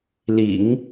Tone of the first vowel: low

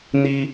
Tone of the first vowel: high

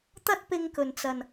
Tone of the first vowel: high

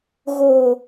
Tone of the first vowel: low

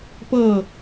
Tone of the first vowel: falling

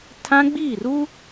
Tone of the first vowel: high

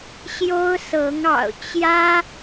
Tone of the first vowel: high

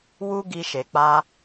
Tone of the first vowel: high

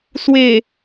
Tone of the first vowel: low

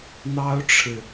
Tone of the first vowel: high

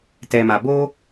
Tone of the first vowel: low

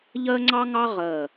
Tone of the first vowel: high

